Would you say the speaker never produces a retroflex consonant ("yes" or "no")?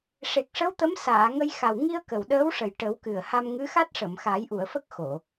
no